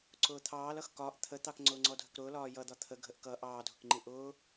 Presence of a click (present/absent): present